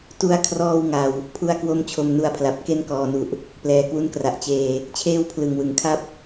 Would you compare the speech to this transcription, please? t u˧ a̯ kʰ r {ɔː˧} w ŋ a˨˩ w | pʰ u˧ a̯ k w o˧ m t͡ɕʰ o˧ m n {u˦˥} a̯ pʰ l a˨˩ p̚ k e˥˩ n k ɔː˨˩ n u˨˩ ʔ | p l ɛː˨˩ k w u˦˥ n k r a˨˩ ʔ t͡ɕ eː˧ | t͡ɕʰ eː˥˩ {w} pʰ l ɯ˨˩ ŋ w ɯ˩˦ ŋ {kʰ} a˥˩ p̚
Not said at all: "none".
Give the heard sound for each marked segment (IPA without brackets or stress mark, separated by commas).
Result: ɔː˧, u˦˥, w, kʰ